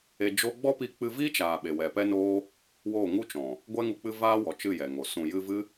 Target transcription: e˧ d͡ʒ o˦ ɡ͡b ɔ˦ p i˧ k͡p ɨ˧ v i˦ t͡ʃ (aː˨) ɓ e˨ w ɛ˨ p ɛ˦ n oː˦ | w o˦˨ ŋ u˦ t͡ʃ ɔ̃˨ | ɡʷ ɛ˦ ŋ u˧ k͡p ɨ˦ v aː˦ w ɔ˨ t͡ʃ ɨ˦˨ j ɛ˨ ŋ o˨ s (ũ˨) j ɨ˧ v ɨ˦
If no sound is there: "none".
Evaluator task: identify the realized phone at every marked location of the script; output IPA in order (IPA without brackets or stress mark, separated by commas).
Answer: aː˨, ũ˨